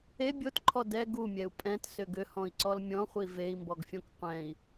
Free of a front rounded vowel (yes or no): no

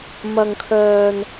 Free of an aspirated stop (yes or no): no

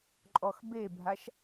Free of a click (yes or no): no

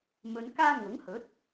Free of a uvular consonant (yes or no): yes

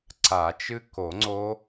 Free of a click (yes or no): no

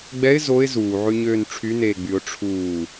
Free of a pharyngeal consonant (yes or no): no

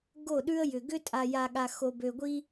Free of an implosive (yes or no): no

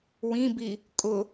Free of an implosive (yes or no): yes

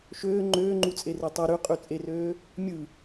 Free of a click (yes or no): no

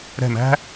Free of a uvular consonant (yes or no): yes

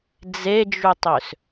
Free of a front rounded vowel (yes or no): no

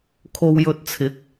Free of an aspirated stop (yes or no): no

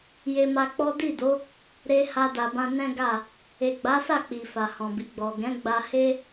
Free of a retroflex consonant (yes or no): yes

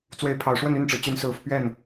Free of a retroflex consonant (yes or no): no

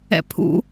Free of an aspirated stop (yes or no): no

